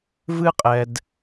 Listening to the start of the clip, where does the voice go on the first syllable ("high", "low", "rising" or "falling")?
high